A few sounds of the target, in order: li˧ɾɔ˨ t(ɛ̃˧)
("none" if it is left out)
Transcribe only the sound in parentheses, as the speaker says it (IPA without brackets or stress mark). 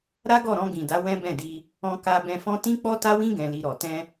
ɛ̃˧